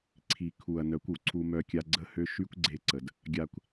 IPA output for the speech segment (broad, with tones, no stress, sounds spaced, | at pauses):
ǀʰ i˨ kʰ u˨ ɐ̯ n œ˨˦ kʷ u˨ ǀʰ u˧ m œ˧ kʲ a˧ ɡ͡ǀ ə˦ h ø˦ ʃ y˦ kʷ ɡ͡ǀ e˧ ǀ ə˨ d | ɡʲ a˧ kʷ